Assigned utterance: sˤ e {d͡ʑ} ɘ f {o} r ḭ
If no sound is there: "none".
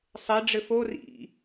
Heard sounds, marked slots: ɖ͡ʐ, o

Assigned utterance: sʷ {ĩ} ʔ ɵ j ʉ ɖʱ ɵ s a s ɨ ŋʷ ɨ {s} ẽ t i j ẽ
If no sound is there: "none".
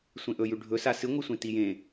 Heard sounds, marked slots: ẽ, sʷ

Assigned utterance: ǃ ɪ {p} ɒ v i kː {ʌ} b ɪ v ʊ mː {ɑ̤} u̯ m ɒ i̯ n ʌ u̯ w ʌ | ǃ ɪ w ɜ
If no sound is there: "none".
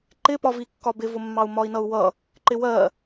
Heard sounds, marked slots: p, ɒ, ɑ

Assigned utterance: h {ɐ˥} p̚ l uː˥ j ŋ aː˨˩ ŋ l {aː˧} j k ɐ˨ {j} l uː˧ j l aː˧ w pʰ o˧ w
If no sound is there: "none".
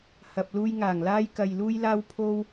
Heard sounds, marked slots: ɐ˧, aː˧, j

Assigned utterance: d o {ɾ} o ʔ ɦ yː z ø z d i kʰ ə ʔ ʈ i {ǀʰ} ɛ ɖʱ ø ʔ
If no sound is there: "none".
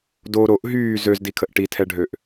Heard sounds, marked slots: ɾ, tʰ

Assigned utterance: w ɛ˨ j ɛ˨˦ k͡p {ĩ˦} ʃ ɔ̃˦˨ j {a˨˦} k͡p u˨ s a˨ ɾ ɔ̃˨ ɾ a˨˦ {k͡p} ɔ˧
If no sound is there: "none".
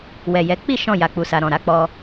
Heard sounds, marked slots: i˦, a˨, k͡p

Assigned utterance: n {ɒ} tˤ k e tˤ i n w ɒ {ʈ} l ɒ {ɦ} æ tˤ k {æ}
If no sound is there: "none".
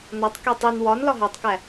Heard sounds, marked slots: ɒ, n, ɦ, æ

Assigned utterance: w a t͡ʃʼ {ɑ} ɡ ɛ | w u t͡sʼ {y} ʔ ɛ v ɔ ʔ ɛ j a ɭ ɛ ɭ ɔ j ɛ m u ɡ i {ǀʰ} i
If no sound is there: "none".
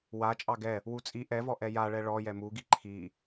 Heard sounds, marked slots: ɑ, i, ǃʰ

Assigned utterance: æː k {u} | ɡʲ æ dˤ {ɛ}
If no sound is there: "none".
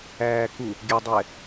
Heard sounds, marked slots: u, ɛ

